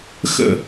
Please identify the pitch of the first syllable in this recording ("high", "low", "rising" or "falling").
falling